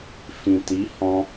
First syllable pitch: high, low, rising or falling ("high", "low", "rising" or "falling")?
low